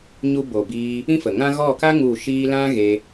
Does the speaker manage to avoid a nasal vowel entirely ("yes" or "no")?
no